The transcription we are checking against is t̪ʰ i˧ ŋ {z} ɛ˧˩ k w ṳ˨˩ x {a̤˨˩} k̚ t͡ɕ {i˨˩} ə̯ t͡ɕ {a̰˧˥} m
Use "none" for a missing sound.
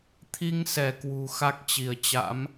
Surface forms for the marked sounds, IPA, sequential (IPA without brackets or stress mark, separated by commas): s, a˦˥, i˧˩, a̰˧˥